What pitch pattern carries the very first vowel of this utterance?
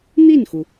falling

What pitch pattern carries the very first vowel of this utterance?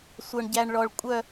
high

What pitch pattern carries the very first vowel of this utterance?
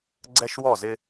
high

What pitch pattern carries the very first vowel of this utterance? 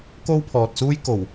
high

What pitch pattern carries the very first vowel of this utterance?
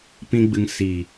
high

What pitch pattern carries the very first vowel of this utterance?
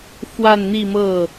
falling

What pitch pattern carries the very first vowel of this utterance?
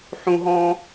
high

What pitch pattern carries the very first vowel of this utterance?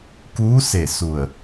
rising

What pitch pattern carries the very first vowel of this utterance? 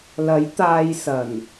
rising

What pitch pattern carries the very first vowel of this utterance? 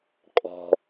low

